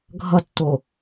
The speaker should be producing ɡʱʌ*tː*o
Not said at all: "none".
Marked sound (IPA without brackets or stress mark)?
tː